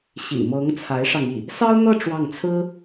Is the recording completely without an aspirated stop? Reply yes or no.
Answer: no